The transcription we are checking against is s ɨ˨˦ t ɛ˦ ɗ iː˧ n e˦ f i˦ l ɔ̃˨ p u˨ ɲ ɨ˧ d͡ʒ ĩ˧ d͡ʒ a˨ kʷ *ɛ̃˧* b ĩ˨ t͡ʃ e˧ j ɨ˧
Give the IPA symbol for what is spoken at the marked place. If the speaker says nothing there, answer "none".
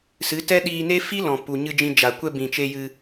ɛ˧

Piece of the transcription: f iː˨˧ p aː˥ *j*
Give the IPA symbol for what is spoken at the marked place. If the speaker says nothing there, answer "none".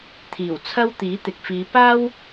w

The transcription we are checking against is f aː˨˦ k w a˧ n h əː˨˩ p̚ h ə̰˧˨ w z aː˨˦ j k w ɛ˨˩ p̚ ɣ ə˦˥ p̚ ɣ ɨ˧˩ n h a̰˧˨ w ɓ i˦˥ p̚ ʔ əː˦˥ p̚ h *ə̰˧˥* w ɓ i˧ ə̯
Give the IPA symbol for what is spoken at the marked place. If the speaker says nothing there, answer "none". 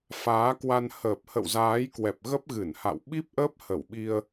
ə˧˩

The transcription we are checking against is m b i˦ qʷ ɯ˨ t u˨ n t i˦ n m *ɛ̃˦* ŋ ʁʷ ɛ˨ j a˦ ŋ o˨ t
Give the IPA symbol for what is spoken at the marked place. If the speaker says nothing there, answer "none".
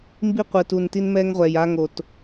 ɛ˦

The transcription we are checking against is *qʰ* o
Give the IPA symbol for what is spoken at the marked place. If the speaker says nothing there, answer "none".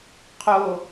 qʰ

